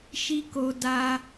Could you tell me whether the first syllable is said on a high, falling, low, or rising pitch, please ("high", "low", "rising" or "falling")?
high